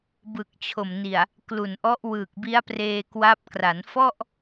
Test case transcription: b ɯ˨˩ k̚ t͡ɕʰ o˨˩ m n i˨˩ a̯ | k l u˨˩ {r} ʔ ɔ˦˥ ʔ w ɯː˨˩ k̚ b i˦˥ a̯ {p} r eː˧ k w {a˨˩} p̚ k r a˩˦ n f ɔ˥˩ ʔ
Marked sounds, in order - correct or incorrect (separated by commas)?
incorrect, correct, incorrect